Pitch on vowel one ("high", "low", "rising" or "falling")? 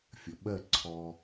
low